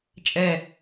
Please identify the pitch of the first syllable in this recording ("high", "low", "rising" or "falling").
falling